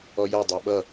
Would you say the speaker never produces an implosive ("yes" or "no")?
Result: no